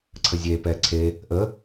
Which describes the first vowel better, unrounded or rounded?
unrounded